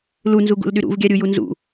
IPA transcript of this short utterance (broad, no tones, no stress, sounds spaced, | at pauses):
l u n z u ɡ ṵ l ɗ y ɾ ṵ v ɡʲ a ɾʲ u j u n z ṵ